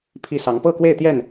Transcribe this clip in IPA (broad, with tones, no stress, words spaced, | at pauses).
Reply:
pʰi˥˨ sɑ˨˦ŋ pɤ˥˨kwe˥˨ɪ̯t̪jɛ˥˨n